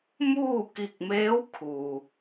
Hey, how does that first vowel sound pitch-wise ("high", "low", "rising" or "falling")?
falling